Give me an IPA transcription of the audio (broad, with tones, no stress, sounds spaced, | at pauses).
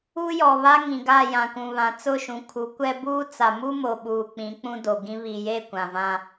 u˦ j ɔ˨ β a˦ ŋ ĩ˨ ɡ a˦˨ j ã˨ k ũ˨ β ã˨ t͡s ʊ˦˨ ʃ ũ˨ kʰ u˨˦ kʷ ɛ˦ b uː˦ t͡s a˨ m u˦ m o˨ ɓ uː˨ k͡p ĩ˨˦ k͡p ũ˦ d o˨ ɡ ĩ˦ β i˨ j e˦˨ kʷ ã˨ v ã˦